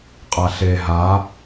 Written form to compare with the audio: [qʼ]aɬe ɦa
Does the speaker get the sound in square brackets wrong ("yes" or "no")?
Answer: no